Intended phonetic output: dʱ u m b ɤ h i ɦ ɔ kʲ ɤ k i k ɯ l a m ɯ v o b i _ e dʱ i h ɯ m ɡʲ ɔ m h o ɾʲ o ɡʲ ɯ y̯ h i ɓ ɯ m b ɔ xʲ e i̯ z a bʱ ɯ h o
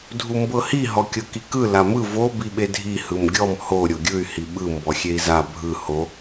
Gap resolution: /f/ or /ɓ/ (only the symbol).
ɓ